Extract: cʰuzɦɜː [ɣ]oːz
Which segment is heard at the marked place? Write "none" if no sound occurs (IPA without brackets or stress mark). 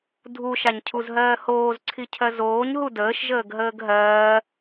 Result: h